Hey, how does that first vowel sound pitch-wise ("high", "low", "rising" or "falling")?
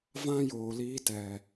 high